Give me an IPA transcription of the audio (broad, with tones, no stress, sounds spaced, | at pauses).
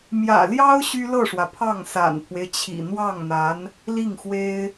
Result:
m j ä̰˨˩ l j ɑ˥ ʊ̯ ɕ y˥ l ɤ˥˩ ʂ w ä˩ pʰ ɑ˥˩ ŋ s a̰˨˩ n pʰ w e˦ ɪ̯ t͡ɕʰ ḭ˨˩ n̪ w ɑ˥˩ ŋ n̪ a˧˥ n | l i˥˩ ŋ x w e˥ ɪ̯